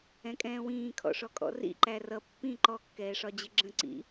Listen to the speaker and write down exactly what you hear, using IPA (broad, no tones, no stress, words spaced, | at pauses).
ɛ̃kʼɛ̃ːwĩː kʰɔ̰ʂɔkʼɔ̰rḭ ǃærʌ pːĩ ǃɔ kːɛːʂɒd͡ʑɪɡ͡ǁə̃ ǀḭ